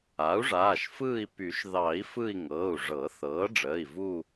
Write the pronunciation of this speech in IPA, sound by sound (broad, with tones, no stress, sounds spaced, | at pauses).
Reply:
a˩˥ u̯ ʐ aː˩˧˩ ʃ f ɯː˦˨ i̯ p y˨˩˦ ʃ ð ɑ˨˩˦ i̯ f ɯ˦˨ i̯ ŋ ɤ˩˧˩ u̯ ʐ ɤ˨˩˦ θ ɤː˩˥ ɖ͡ʐ əː˩˧˩ i̯ v u˦˨